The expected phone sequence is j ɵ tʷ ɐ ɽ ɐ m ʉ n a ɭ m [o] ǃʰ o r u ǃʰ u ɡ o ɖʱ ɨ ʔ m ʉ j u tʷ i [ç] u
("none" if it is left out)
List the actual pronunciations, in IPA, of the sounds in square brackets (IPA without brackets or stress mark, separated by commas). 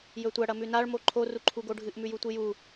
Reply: o, j